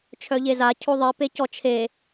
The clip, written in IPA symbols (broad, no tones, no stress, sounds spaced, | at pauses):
t͡ʃʰ œ ʎ e z a cʰ o ðˤ i p e c ɔ t͡ʃʰ e